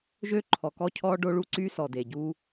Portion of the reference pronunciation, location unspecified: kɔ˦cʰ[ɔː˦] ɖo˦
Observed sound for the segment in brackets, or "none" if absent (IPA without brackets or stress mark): ɔː˦